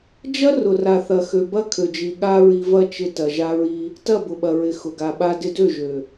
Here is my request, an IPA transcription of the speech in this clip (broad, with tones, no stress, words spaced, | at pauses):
d͡ʒɐ˦rʊ˨ ra˨θɐ˨xø˨ bɐ˦kʰø˨d͡ʒi˨ ɠa˦ɹi˧ vɐ˦t͡ʃɪ˧tɐ˨ ʒa˧ɹi˧ | tɐ˦˨bʊ˨ɓɐ˨ɹɪ˨ xʊ˨ɡa˨ɓa˧ dɪ˧dø˦˨ʒø˨